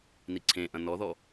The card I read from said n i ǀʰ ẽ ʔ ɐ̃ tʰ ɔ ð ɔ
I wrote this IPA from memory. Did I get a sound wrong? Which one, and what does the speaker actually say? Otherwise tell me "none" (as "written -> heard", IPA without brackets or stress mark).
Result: tʰ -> n